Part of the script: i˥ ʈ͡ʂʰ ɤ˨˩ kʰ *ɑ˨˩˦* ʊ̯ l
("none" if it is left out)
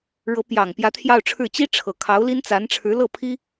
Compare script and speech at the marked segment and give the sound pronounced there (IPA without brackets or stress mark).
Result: ɑ˧˥